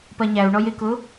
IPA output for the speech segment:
p ɜ ɲ æ u̯ ɳ ɔ j ɪ k ʊ

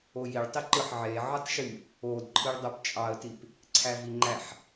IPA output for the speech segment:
o j i ɭ tˤ i ǃ ɯ ħ ʕ e ʕ ɯ tˤ ʃ y | o d ǃʰ ɯ ɭ dˤ o p t͡ʃʼ ɑ ə̯ t i p | ǀʰ æ v i ŋ͡ǃ æ ħ

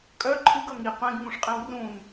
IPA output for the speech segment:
kʼ œ ǃʰ ɨ ɡ ʌ ŋ i qʷ ẽ ɡ ŋ ũ ʂ qʼ ẽ w r ũ n

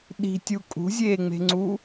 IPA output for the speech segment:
ɗ i̤ tʲ u kʼ ṳ zʲ eː ŋ͡m e̤ ŋ͡ǀ u

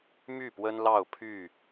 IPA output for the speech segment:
m y˥˨ p w ə˦ n l ɑ˥˨ ʊ̯ pʰ y˥˨

